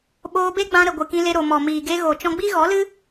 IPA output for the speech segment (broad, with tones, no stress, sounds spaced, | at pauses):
ɓ oː˧ b e˦ ɡ͡b ã˧ ɾ ə˨ ɡʷ ɨ˨ k ĩ˧ l e˧ ɾ o˨ m ɔ˨ m iː˨ ɡ e˧ ɣ o˨ t͡ʃ ɔ̃˧ ɡ͡b i˦ ɣ ɔ˨˦ l ɨ˦